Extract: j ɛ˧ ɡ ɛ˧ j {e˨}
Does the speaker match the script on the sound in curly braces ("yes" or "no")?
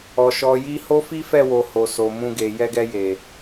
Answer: yes